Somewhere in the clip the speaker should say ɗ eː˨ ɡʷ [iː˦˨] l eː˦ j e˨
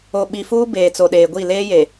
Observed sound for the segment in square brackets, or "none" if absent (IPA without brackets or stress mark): i˦˨